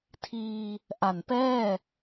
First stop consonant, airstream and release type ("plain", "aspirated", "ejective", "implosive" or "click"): aspirated